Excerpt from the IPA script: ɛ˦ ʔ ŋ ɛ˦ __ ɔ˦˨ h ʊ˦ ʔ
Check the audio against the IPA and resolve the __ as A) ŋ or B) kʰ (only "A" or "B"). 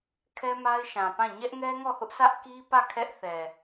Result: A